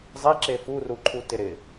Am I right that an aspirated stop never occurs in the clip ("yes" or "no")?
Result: no